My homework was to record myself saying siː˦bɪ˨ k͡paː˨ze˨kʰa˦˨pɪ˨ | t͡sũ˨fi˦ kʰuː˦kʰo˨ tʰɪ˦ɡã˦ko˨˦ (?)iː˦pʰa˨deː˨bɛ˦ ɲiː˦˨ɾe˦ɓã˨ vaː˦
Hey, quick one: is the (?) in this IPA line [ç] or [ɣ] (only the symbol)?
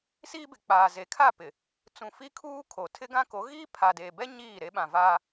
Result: ɣ